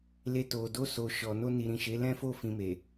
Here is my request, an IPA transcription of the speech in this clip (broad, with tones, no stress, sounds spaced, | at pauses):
l e˧ t o˨ d o˧ s o˨ ʃ ɔ˨ n o˧ n i˨ ɾ ĩ˨ ʃ e˨˦ l ɛ̃˦ f o˦˨ f ĩ˧ m e˨